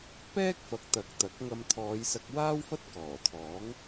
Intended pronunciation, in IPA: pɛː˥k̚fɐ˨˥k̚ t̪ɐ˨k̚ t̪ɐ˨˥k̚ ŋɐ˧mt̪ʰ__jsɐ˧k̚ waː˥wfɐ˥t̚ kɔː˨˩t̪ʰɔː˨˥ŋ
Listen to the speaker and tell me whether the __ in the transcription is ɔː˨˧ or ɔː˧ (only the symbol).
ɔː˨˧